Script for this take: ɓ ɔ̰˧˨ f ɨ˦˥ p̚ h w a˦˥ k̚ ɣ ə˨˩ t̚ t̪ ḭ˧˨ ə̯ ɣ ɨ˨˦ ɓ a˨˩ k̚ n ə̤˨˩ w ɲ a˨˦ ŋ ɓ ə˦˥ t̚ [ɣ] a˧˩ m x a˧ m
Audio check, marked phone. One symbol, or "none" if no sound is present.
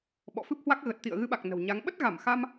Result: ɣ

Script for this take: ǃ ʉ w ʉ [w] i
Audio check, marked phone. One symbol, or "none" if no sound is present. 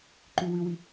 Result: w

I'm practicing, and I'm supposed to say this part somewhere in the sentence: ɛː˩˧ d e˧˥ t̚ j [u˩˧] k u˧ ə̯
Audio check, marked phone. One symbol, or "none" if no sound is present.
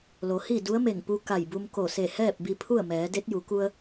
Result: u˩˧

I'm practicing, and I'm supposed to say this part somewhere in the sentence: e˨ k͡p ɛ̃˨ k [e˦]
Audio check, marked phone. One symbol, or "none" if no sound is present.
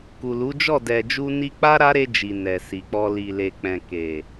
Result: e˨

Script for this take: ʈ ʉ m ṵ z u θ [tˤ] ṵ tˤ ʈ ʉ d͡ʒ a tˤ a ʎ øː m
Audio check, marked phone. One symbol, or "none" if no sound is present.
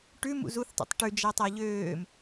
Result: tˤ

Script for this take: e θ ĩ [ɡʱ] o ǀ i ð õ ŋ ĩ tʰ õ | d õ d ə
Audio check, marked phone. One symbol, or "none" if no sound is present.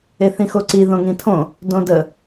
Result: x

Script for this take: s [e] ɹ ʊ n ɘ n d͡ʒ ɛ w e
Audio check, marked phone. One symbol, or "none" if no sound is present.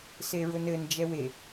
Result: e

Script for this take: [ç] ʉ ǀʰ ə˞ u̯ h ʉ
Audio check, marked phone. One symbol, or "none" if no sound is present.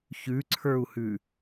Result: ç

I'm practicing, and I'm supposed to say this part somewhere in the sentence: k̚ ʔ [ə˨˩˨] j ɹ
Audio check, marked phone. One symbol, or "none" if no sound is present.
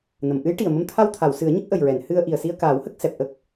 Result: ə˨˩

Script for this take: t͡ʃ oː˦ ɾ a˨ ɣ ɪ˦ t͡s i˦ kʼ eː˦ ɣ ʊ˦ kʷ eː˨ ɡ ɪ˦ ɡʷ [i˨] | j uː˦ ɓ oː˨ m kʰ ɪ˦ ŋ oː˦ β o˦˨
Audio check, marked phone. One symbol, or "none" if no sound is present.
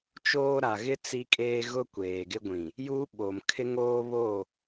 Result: ĩ˨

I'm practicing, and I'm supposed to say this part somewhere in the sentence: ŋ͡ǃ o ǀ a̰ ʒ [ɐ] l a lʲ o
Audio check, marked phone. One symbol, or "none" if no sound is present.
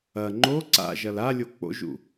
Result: ɐ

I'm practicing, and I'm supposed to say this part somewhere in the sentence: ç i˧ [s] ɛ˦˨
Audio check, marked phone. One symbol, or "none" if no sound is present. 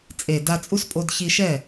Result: ʃ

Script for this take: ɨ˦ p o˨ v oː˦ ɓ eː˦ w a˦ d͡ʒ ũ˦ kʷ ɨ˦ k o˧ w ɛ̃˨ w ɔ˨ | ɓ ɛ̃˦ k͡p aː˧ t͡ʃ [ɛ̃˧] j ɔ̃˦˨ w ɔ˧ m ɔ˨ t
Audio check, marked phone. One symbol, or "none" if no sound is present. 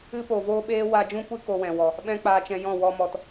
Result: ɛ̃˧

